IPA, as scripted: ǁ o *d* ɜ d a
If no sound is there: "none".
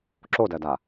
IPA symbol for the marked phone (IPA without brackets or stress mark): d